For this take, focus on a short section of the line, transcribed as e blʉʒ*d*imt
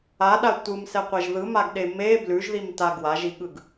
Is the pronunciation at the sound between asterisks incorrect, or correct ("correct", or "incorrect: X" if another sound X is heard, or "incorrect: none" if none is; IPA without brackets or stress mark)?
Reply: incorrect: ð